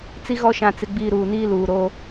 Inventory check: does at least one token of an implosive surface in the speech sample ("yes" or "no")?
no